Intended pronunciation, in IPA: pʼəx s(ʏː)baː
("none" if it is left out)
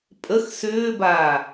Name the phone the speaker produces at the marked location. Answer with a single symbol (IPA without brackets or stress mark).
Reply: ʏː